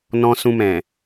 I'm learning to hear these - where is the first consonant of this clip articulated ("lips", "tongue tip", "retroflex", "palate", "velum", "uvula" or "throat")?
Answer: tongue tip